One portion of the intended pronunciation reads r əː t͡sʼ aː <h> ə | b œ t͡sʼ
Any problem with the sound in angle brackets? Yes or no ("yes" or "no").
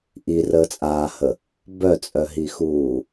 no